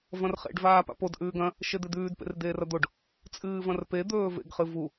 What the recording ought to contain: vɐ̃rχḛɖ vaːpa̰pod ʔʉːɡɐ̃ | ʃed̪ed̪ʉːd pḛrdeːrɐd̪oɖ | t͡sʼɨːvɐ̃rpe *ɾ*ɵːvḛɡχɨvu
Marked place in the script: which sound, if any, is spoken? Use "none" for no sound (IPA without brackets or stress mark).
d̪